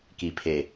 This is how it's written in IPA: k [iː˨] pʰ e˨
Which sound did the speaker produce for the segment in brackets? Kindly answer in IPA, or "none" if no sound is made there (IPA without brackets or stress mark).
i˨